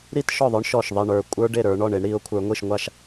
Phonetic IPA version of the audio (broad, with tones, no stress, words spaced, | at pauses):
ɾi˥tʃɔ˥˩ðˤə˞˥ɳ ʃɔ˥˩ʃðˤi˥˩ ɳə˞˥˩ kʷʼə˞˥ɖe˥˩ɾə˞˨˦ ɳɔ˥˩ɳ e˨˦ɳɾi˨˦ʊ̯kʷʰə˞˨˦ ŋʷi˥˩ʃŋʷa˥˩ʃ